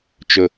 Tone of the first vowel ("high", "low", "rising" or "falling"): low